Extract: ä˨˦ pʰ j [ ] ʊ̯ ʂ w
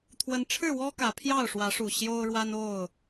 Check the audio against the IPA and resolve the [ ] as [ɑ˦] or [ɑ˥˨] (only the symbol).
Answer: ɑ˥˨